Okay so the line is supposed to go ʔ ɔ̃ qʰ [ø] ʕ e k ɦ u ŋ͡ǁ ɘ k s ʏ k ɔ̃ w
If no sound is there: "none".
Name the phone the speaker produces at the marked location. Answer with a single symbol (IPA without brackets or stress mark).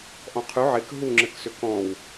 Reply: ʉ